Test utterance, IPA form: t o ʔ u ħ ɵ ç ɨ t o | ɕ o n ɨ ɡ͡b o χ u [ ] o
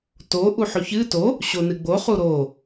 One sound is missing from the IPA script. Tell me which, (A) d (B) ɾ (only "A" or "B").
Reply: B